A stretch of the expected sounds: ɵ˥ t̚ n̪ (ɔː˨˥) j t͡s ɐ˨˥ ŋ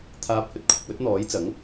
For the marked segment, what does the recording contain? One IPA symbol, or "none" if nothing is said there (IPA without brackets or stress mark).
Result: ɔː˨˥